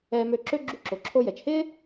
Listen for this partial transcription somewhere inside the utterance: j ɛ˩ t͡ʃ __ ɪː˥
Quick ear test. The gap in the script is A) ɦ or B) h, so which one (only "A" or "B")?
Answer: B